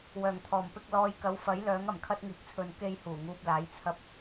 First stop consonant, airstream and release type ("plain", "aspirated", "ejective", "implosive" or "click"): aspirated